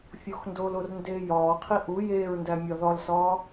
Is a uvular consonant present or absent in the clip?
present